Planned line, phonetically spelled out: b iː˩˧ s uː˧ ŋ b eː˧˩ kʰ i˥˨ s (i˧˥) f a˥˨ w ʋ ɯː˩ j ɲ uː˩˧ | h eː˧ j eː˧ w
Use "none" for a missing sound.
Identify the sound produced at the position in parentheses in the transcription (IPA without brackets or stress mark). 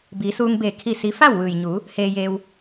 i˧˥